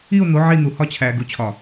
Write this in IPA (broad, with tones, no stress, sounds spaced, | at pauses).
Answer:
i˦˨ o̯ n̪ o˨˦ ʕ i˦˨ n̪ u˨ h ɒ˦ t͡ɕʰ æ˨ ɡ u˨ t͡ɕʰ ɒ˨